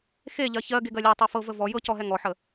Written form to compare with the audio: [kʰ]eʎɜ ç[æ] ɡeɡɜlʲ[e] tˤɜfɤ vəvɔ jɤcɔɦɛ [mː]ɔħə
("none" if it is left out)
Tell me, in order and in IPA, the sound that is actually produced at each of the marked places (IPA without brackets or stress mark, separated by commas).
x, ɜ, e, ŋ